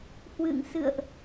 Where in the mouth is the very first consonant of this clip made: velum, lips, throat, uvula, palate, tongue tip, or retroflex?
throat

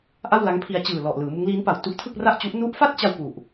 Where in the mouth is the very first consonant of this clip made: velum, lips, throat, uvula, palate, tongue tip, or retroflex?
throat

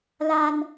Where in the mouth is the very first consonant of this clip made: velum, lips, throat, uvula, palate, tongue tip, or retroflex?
tongue tip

